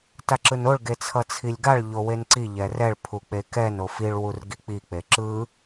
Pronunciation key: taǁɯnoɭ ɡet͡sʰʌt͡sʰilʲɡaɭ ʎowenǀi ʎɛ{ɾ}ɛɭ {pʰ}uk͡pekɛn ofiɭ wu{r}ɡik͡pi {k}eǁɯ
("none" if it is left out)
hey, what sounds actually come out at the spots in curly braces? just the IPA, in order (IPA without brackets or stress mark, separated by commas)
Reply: r, pʰ, r, k͡p